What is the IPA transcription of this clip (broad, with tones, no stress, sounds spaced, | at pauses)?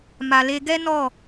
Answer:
m a˨ l e˧ ɡ ɛ˦ n ɔ˦˨